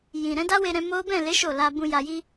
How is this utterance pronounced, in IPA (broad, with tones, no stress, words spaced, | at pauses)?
jĩ˨ ɾɛ̃˨˦da˦we˧ɾɛ̃˧ mo˦ bɛ̃˦˨le˨˦ ʃo˦˨ la˧bũ˧ ja˧ji˦